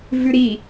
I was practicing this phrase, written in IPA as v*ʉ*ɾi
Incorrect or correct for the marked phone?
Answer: correct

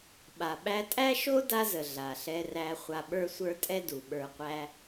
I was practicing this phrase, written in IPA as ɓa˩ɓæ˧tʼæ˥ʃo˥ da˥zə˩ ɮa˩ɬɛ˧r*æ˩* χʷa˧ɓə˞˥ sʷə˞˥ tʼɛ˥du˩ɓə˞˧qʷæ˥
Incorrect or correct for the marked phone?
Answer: incorrect: æ˧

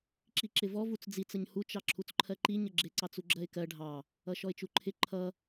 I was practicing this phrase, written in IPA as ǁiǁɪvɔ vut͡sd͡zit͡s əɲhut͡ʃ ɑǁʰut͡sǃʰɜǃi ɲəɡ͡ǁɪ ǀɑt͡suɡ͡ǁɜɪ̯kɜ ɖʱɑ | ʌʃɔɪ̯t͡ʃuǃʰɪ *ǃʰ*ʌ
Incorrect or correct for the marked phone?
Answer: correct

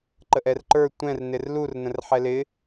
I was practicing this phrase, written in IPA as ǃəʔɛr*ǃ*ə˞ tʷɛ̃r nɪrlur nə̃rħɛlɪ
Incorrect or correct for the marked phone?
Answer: correct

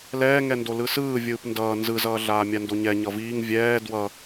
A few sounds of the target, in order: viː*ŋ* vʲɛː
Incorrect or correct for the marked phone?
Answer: correct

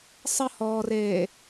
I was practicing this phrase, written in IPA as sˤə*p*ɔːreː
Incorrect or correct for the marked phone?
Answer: incorrect: h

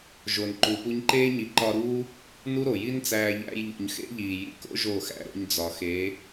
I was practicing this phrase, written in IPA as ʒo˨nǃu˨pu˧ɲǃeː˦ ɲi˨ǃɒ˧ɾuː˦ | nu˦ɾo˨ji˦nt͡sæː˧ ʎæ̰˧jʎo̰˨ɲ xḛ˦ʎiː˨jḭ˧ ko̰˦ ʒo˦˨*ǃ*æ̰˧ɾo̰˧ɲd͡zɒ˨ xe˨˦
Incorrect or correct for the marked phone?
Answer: incorrect: x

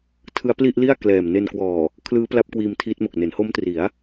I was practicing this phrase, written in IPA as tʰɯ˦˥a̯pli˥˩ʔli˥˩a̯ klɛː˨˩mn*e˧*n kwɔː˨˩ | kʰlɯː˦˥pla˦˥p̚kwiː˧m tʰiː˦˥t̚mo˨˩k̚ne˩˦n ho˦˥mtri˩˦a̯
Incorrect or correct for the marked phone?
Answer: correct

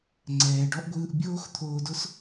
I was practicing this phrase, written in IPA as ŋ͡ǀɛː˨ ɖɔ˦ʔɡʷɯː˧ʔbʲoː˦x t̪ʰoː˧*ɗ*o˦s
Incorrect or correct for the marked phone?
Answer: incorrect: d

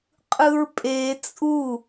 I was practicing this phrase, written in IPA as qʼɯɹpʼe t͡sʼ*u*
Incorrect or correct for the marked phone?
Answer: correct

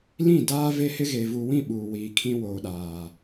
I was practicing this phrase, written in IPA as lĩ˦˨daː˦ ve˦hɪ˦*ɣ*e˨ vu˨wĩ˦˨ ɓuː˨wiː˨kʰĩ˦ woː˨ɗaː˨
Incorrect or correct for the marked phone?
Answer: correct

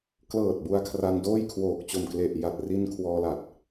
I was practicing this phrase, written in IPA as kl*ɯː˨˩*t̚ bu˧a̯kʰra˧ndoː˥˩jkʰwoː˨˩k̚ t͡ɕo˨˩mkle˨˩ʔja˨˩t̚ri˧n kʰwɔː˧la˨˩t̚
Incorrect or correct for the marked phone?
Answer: incorrect: ɤː˨˩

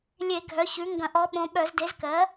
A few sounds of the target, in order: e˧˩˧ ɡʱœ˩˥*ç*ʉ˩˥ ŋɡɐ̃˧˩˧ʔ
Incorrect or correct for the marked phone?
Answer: correct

